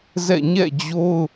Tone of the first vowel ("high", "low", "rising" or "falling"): falling